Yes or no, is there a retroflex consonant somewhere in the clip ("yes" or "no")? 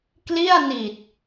no